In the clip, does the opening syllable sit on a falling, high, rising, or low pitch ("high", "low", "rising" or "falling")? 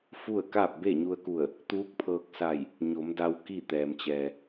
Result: falling